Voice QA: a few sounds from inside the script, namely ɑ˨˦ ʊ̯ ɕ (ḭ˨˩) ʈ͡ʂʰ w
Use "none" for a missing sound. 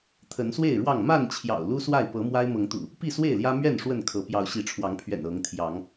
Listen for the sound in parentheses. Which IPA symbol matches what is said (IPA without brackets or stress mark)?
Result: i˨˦